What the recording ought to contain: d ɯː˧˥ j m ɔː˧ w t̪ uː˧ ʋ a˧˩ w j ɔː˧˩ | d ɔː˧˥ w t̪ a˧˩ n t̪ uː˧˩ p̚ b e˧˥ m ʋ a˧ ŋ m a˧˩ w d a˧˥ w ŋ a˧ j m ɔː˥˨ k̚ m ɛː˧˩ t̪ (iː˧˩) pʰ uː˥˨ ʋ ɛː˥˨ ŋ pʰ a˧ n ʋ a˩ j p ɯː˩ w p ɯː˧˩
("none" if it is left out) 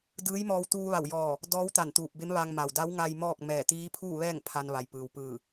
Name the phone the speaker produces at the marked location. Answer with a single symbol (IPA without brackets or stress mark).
iː˧˥